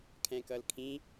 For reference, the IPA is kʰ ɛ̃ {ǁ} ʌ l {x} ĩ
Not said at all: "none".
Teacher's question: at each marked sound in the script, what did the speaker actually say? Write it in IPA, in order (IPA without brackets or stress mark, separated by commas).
k, kʰ